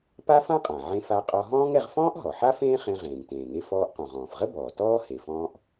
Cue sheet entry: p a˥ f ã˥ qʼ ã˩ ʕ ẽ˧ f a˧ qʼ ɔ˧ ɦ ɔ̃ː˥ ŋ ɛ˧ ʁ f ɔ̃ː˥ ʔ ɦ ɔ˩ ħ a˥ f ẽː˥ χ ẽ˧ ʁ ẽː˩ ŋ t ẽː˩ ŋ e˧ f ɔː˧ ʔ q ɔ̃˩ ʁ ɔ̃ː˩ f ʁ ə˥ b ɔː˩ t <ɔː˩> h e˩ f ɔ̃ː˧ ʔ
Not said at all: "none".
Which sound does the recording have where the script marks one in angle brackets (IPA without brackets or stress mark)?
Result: ɔː˥